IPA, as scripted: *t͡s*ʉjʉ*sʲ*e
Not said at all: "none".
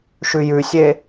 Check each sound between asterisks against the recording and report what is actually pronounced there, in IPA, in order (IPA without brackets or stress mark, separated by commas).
ʃ, sʲ